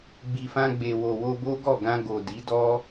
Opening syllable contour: low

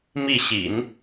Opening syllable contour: falling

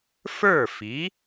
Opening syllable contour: falling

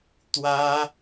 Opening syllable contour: high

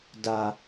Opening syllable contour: low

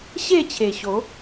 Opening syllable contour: falling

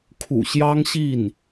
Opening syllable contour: low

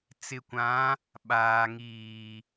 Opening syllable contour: low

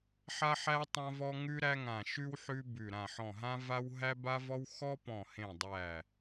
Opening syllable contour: high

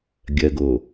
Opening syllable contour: low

